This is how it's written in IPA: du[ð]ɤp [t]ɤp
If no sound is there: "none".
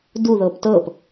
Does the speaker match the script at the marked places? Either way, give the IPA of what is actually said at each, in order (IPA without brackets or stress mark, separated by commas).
ð, t